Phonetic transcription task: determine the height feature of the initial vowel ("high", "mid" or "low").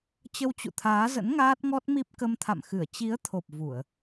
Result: mid